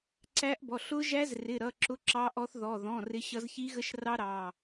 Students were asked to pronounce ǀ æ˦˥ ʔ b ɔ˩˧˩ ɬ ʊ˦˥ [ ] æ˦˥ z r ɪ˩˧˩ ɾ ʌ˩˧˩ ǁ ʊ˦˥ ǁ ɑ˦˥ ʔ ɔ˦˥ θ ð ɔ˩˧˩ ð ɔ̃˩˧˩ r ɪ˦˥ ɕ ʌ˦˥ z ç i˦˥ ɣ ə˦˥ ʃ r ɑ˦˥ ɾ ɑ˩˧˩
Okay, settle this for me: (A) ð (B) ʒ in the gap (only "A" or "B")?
B